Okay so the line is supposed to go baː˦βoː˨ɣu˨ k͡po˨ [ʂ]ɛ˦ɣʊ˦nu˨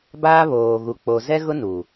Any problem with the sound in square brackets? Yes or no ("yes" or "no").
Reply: yes